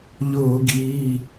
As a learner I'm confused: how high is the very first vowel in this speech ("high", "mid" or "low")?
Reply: high